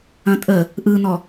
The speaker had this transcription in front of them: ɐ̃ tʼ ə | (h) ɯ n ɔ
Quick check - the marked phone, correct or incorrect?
incorrect